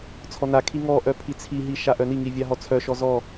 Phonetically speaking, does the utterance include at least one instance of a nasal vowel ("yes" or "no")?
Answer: no